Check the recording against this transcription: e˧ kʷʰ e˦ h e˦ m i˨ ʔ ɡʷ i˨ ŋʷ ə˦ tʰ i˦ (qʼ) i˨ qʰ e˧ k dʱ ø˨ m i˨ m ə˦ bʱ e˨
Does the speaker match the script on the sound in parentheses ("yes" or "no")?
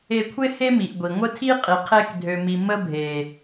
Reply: yes